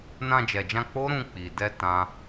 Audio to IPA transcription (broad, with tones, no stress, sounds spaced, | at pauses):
n ã˧ d͡ʒ ɛ˨ d͡ʒ ã˧ k͡p o˦ ɾ ũ˧ k͡p i˨ d ɛ˧ t ã˦